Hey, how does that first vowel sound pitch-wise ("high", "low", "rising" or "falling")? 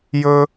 high